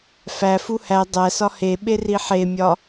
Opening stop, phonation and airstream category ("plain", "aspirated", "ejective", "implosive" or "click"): plain